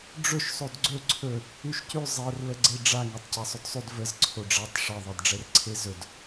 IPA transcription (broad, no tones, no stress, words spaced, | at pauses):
ɖ͡ʐɵʃ sˤodɡ͡ǀɵ ǀʰɵ | ʉʃcʉ zˤɛrlə ɡ͡ǀeɖ͡ʐa ŋetˤcasˤɵdsˤʉd vəz ǀʰoɖ͡ʐatˤ ʂɛðˤɛdɖ͡ʐɛrǀʰe zɵd